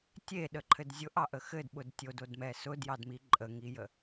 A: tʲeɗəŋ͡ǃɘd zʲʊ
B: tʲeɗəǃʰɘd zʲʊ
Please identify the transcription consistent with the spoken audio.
B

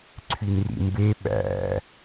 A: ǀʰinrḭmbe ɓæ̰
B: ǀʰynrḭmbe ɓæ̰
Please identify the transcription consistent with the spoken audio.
B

